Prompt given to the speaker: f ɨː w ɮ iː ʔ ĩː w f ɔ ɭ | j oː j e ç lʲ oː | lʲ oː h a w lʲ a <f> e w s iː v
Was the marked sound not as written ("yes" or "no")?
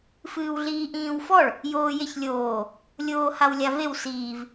yes